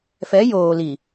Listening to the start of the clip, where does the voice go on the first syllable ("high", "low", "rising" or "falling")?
rising